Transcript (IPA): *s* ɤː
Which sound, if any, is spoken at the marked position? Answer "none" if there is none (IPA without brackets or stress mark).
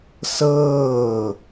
s